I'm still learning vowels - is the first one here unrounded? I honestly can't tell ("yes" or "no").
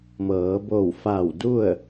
yes